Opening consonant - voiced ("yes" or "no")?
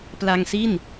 no